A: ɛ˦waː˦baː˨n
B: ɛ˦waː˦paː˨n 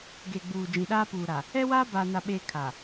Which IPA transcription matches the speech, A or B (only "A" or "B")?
A